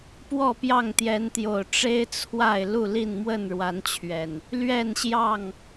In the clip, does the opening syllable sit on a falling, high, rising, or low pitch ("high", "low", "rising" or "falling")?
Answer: falling